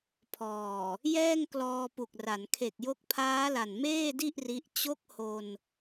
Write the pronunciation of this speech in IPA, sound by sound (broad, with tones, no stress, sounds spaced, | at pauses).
pʰ ɔː˨˩ | j ɛː˥˩ ŋ k l ɔː˧ p u˨˩ k̚ r a˩˦ n kʰ e˨˩ k̚ j o˦˥ k̚ pʰ aː˦˥ l a˨˩ n m eː˥˩ d i˥˩ ʔ r i˦˥ ʔ t͡ɕ o˦˥ k̚ h o˧ n